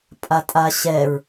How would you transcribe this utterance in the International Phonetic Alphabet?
pʼatʼaɕɛɹ

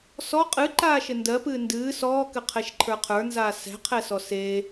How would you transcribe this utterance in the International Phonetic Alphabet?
sɔ qʼɨǃaːʃɘ ndɜpɨː ndɨː sɔːkɘqʰɛʃǃʰə˞ qʰə˞nzaː sɛ̤qʰɛsɔ se

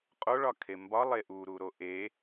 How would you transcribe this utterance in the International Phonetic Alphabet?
qʼoɭɒkʰe mbɒlˠe ʔuɾuɾo ʔe

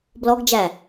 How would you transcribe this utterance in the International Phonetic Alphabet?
blɔɡd͡ʒæ

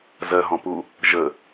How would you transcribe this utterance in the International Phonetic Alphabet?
zɜɦɔ̃pu | ʒə

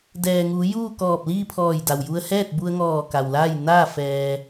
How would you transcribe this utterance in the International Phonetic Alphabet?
dɛː˩ŋuː˩˧ juː˥˨kɔː˧˩p̚liː˥˨ pʰɔː˧˩jda˩wju˧ə̯ hɛː˥˨t̚bu˧ə̯ŋɔː˧˩ ka˩wlaː˥˨j naː˥˨ fɛː˧

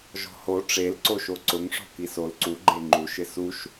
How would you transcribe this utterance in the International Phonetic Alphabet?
ʒɔ̤ho ʈ͡ʂelǀoʃo ǀʊŋʂɔ̤ kisol ǀu ɡ͡ǃeŋ͡ǃuʃɪ suʃ

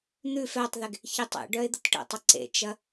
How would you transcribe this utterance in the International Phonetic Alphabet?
n̪ʉ fɛtˤðeɡ | çɪtˤḛɖœɪ̯ d̪ətʈə̰tˤɪ ǀḛt͡ʃɐ

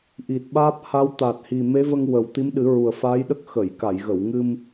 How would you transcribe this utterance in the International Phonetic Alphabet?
ʔi˨˩t̚ɓaː˦˥p̚ha˧˥w t̪a˨˩t̚hi˨˩ me˧˥və˧ŋ wə˨˩w t̪i˧˥mɗɨ˨˩˦ɹu˨˩ə̯ faː˧˥jɗə˦˥k̚ xə˨˩˨jka˨˩˨jɣə˨˩˨wŋɨ˧m

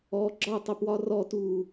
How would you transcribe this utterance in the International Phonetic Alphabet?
ɔ ɡ͡ǁɒtˤœpwɒ rɔtuː

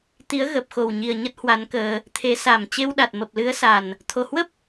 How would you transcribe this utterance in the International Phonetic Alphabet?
t̪i˨˦ə̯ɣə˨˩p̚ xo˨˩wɲi˨˩ə̯ɲə˦˥t̚ hwa˨˦nkəː˧ | t̪ʰe˨˦sa˨˩m t͡ɕe˧wɗa˨˩t̚ mə˨˩p̚lɨ˨˦ə̯sa˨˩n | t̪ʰo˧˩hwə˦˥p̚

